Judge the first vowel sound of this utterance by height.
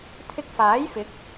high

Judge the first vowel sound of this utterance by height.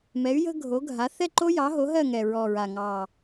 mid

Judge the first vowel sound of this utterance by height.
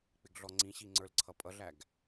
high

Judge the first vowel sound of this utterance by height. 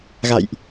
low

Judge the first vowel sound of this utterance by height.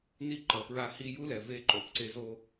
high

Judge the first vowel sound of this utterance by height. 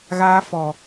low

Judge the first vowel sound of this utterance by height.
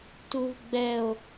high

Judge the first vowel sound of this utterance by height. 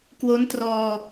mid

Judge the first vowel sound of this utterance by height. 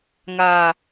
low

